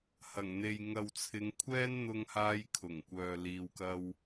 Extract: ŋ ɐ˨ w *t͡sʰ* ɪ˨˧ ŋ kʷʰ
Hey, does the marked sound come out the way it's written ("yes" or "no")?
yes